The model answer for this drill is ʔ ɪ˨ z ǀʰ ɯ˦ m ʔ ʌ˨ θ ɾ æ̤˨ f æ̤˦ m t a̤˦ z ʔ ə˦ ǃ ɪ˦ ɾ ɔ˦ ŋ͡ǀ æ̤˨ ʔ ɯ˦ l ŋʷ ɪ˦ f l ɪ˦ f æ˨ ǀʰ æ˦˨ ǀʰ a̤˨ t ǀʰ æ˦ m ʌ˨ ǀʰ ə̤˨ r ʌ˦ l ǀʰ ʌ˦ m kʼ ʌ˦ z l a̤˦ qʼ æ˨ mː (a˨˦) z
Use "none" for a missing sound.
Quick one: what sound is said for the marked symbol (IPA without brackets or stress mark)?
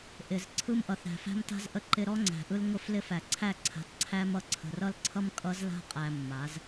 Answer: a˨˦